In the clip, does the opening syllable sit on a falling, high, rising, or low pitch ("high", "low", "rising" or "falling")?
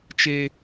high